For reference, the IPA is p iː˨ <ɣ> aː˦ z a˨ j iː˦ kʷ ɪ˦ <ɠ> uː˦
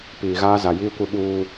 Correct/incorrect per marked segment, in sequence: correct, incorrect: ɓ

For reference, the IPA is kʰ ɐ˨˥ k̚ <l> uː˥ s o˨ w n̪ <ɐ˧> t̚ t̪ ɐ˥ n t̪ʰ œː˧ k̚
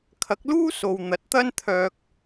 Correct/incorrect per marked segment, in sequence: correct, incorrect: ɐ˨˥

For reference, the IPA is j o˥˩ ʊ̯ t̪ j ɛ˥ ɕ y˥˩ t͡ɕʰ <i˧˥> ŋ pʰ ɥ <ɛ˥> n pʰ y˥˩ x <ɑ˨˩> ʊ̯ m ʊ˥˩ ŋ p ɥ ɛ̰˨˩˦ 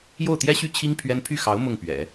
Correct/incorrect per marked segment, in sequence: incorrect: i˥, correct, incorrect: ɑ˧˥

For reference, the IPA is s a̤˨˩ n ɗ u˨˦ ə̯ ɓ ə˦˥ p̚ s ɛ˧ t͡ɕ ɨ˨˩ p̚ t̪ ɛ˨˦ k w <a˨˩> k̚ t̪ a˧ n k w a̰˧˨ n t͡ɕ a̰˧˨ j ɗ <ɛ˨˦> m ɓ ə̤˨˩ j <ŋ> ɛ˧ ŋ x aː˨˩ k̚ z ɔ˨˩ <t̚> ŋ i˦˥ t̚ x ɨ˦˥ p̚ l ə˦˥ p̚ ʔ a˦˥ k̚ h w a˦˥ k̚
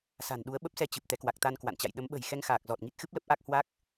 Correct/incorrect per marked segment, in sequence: correct, incorrect: ə˨˦, incorrect: x, correct

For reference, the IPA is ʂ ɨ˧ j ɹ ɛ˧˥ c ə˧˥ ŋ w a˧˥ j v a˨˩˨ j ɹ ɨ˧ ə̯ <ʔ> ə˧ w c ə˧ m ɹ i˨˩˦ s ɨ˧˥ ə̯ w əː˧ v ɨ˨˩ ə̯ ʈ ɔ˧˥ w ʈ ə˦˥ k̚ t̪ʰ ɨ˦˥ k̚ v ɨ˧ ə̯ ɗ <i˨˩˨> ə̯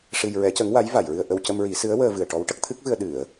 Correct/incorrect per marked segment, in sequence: correct, incorrect: ɨ˨˩˨

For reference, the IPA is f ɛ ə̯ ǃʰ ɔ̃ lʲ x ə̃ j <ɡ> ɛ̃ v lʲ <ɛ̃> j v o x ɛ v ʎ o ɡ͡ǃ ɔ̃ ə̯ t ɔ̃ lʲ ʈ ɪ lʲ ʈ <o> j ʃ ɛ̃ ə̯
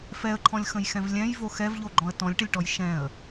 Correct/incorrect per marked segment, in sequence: incorrect: x, correct, incorrect: ɔ

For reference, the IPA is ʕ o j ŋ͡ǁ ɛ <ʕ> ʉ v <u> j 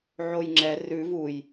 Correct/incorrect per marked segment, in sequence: incorrect: r, correct

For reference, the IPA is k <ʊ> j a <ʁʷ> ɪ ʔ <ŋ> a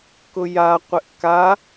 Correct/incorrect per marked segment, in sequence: correct, incorrect: qʷ, incorrect: k

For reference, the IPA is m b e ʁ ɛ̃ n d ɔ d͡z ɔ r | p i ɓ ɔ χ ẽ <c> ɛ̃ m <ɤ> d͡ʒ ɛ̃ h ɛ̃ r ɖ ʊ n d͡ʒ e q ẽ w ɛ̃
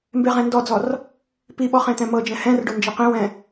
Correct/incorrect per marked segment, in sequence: incorrect: t̪, correct

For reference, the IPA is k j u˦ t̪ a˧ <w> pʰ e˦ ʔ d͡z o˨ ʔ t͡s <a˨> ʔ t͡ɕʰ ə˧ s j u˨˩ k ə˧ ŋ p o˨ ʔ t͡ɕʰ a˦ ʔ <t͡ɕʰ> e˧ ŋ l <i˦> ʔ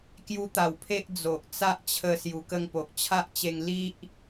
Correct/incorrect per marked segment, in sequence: correct, incorrect: a˦, incorrect: t͡ɕ, correct

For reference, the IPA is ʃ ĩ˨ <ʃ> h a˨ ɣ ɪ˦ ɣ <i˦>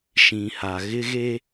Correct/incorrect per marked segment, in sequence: incorrect: none, incorrect: e˦

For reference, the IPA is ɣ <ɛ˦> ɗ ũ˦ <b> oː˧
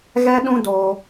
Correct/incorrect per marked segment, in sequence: correct, incorrect: d

